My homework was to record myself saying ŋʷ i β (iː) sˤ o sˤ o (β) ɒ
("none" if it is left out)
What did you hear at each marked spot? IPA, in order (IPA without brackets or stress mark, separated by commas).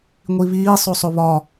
iː, β